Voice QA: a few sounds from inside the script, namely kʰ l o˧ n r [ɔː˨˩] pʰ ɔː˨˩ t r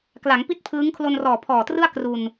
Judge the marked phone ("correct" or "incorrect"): correct